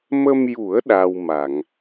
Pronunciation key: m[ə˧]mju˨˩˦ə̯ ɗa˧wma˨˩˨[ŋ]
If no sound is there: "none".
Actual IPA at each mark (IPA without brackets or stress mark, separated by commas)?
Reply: ə˧, ŋ